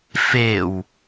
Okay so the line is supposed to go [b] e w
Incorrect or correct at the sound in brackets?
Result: incorrect: f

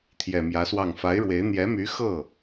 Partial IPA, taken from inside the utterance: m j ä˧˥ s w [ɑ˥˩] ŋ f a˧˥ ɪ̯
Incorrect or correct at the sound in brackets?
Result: correct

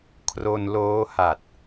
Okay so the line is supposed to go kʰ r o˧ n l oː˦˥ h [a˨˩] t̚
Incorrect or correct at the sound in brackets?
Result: correct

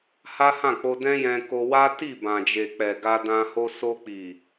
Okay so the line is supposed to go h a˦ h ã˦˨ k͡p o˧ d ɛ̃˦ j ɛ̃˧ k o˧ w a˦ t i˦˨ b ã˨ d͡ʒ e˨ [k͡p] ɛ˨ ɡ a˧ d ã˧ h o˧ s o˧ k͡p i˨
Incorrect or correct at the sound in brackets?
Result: correct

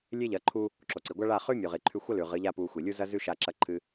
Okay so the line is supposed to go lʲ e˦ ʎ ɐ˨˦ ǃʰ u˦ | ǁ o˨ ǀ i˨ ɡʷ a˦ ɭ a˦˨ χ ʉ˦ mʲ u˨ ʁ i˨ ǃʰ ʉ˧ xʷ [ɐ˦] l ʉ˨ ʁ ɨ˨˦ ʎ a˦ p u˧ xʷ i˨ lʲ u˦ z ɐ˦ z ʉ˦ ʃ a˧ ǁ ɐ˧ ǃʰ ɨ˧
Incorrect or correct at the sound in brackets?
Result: correct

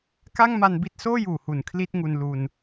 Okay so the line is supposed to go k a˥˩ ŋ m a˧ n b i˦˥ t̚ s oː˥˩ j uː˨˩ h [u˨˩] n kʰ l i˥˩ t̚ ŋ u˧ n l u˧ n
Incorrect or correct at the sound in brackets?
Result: correct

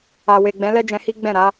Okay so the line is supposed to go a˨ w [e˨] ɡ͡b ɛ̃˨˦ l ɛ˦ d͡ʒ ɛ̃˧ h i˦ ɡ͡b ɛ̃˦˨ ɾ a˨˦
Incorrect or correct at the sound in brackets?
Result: correct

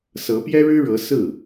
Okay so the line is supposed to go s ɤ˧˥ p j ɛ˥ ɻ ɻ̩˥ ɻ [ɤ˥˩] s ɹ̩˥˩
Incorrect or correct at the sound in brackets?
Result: incorrect: ɤ˧˥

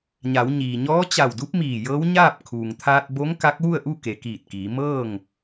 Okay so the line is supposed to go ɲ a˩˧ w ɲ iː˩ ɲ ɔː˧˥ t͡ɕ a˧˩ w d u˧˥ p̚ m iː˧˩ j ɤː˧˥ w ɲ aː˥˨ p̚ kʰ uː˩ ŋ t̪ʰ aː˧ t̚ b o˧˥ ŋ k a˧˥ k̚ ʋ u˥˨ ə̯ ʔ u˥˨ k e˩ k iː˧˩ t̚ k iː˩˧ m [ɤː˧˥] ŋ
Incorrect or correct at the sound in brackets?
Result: incorrect: ɤː˥˨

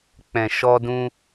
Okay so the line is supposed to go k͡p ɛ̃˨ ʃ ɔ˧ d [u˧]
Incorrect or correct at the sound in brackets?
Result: incorrect: ũ˧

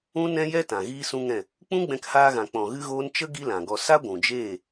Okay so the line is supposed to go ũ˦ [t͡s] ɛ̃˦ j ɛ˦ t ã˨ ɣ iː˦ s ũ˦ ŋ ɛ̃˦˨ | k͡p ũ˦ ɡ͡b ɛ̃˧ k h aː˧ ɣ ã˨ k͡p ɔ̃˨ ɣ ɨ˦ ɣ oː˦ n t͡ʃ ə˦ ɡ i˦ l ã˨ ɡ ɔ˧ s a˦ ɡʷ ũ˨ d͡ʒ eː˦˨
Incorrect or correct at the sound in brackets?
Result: incorrect: n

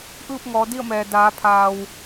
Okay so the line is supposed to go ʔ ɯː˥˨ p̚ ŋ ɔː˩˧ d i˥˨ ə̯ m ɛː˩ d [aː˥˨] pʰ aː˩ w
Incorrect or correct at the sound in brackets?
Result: incorrect: aː˩˧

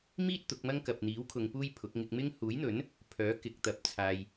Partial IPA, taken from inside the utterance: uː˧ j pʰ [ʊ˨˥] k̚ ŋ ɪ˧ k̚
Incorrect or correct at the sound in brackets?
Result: correct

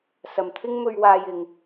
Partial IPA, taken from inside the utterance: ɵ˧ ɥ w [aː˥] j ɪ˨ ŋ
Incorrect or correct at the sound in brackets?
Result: incorrect: aː˧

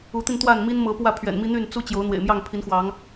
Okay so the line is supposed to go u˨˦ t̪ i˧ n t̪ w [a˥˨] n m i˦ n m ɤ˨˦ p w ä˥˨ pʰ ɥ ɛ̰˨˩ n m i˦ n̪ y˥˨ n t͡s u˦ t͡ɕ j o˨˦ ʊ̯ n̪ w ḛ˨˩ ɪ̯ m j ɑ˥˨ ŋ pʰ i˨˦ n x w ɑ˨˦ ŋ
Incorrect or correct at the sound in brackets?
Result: correct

